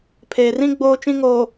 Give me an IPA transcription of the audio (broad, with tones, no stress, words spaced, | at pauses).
pʰeː˨rĩ˦ ɡ͡boː˦t͡ʃĩ˦ŋoː˨